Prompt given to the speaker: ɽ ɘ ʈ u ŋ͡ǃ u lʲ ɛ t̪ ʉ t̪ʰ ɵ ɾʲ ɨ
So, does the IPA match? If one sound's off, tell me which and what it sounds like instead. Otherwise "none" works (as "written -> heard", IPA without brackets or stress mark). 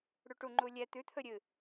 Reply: ɘ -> ʉ